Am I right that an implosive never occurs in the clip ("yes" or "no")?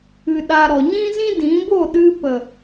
no